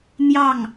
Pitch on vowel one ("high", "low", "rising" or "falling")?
falling